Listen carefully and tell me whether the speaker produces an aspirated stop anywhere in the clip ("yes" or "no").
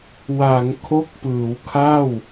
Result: yes